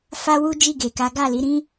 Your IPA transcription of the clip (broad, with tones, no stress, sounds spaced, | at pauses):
f a˦ w u˦ d͡ʒ i˦˨ ɡ e˨ k a˨˦ ɡ a˦˨ l i˨˦ ɾ ĩ˦